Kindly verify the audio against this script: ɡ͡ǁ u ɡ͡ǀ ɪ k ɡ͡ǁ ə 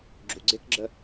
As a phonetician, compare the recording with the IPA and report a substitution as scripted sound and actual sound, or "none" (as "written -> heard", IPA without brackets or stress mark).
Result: none